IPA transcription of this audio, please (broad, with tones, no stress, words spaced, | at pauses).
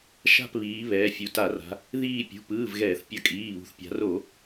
ʃa̤˦˨pβiː˩˧ βɛː˩˧fʲu˩˧ta˧˩˧ra̤˩˧ | ðiː˦˨ pʲṳ˩˧˩pɯː˩˧˩v ɣɛː˧˩˧θpʲʌ˧˩˧kʼiː˩˧˩βṳ˩˧θ pʲa̤˩˧ro˧˩˧